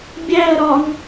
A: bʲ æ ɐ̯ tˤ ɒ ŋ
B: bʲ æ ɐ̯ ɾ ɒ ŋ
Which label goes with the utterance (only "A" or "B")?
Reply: B